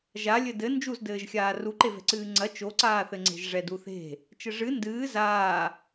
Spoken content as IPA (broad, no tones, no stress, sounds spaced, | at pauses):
ʒ a lʲ ɘ d ɘ n d͡ʒ u z d ɘː ʒ xʲ aː r u ǃ e v ɛ̤ ǀ ɨː ŋ͡ǀ ɐ t͡ʃ o ǀ aː θ ɘ ŋ͡ǀ e̤ ʒ ʐ ɛ d u θ e̤ | t͡ʃ ɘ ʐ ɨ n d ɨː z aː